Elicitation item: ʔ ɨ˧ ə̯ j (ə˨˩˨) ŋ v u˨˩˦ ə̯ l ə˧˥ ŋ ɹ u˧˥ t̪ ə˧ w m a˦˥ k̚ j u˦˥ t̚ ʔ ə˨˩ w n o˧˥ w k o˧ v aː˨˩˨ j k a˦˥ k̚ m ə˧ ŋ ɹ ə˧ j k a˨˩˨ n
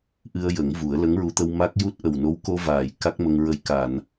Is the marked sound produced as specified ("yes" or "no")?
no